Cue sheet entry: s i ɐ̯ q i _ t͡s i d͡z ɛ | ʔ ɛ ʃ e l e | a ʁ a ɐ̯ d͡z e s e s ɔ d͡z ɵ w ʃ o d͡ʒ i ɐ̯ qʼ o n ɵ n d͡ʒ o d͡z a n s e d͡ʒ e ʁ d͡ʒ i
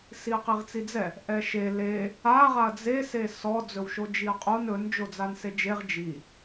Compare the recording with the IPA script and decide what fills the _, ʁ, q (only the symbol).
ʁ